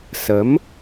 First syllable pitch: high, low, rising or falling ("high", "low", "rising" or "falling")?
rising